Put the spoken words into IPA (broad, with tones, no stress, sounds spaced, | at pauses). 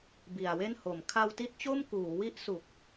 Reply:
b i˨˩ a̯ w e˥˩ n h o˨˩ m kʰ a˧ w t i˦˥ t̚ t͡ɕ o˥˩ m k uː˩˦ w i˦˥ ʔ s u˨˩ k̚